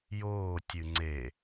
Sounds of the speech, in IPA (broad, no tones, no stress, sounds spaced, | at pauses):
j oː tʲ ɨ ŋ͡ǀ e